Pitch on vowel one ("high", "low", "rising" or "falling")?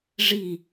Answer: falling